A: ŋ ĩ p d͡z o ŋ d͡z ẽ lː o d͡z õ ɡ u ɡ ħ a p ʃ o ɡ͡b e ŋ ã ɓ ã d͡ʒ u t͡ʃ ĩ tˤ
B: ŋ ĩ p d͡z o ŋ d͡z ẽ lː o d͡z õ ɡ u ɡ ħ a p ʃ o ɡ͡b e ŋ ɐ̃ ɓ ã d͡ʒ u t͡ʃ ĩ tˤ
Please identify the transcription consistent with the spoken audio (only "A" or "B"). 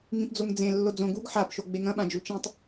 B